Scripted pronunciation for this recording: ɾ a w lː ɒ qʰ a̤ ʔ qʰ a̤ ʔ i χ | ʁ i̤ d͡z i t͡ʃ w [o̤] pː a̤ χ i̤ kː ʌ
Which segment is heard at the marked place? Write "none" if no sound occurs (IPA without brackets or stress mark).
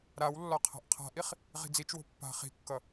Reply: o̤